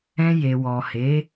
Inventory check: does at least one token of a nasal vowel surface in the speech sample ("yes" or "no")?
yes